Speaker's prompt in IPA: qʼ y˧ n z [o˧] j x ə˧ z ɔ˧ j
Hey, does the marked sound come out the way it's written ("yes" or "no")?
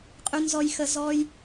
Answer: no